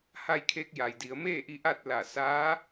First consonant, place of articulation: glottal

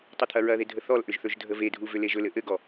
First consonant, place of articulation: alveolar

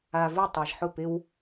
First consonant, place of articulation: labial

